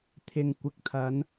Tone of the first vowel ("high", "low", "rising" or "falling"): low